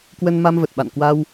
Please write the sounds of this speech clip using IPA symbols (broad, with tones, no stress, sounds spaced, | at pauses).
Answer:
k w ə˧ n m a˧ m v ə˨˩ t̚ ɓ a̰˧˨ n k w a˧ w